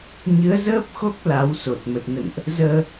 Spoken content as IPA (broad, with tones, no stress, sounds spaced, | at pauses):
ɲ ɨ˨˦ ə̯ z əː˦˥ p̚ x o˦˥ k̚ l a˨˦ w s o˨˩ t̚ m ə˨˩ t̚ n ə̰˧˨ n ʔ | z əː˧